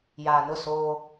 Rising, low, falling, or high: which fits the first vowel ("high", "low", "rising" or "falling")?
low